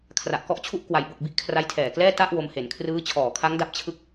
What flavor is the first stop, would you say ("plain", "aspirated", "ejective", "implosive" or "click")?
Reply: aspirated